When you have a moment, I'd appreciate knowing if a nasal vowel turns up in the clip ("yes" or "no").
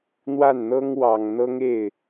no